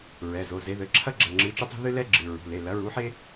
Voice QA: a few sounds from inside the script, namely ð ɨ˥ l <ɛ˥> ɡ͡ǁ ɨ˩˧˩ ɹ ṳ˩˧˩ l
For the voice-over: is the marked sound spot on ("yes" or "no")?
yes